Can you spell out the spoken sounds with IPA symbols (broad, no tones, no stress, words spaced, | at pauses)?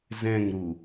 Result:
zɛ̃ŋɾu